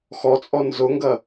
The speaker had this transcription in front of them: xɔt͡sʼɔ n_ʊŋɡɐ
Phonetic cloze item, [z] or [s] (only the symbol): z